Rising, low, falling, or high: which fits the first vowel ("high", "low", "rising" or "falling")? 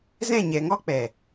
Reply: falling